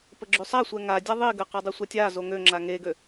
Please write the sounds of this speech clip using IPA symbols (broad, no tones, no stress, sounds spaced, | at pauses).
p ə ɡ͡ǁ y sˤ a sʷ ɛ ŋ a dʲ a ðˤ i ɡ ə q a dˤ u sʷ a tʲ a z o ŋ ø ŋ͡ǁ a ŋ e ɡ ø